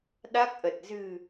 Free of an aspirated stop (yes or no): yes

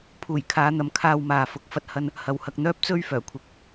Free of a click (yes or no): yes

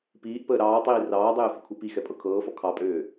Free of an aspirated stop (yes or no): no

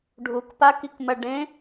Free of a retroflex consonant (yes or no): no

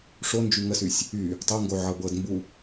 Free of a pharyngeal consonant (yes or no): no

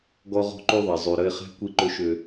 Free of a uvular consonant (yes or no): no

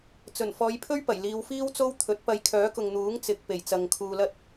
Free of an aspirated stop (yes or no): no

